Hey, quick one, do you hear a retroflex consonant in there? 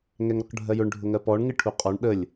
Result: yes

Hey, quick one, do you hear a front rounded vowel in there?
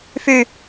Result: yes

